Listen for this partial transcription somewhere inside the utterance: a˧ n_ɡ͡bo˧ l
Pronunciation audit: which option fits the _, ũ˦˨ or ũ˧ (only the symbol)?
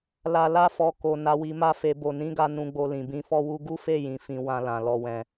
ũ˧